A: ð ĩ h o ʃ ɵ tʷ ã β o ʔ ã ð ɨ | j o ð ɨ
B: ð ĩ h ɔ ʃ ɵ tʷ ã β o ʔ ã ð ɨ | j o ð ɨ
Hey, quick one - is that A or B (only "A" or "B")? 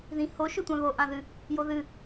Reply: A